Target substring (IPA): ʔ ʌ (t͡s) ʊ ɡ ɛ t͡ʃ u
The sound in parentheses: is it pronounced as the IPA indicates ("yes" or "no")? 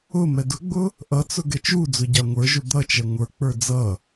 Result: yes